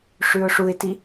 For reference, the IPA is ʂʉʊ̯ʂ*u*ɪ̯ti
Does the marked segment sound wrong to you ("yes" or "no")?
no